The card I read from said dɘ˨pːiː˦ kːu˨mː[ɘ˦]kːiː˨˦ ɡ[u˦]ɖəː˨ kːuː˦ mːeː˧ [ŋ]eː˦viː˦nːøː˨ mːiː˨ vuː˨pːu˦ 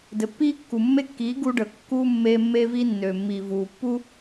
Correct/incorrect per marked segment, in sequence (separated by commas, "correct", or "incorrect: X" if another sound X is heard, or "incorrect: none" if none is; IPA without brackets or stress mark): incorrect: e˦, correct, incorrect: mː